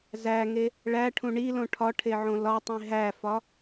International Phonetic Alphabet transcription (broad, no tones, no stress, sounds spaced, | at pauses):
z æ ŋ e | ɭ æ ʈʰ ũ ɳ i l õ ʈʰ ɒ ʈʰ e ʕ õ l ɒ tˤ ĩ ɦ æ f ɒ